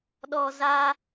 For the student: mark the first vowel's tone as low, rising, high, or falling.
low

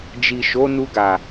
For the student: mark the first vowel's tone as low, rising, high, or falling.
low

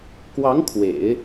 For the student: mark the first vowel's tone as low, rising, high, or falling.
rising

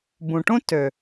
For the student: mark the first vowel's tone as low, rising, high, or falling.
low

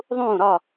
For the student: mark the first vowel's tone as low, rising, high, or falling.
falling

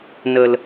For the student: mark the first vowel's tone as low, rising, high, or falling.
low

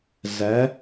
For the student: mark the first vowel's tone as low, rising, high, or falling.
rising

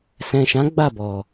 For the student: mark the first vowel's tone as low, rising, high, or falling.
low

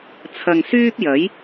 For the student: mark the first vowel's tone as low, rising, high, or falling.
low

